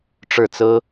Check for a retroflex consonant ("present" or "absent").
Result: present